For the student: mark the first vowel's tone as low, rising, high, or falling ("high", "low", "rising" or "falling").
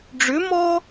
rising